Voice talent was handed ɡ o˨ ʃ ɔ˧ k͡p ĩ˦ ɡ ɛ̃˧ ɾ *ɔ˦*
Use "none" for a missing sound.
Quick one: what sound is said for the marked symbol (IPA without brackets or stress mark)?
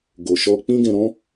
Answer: ɔ̃˦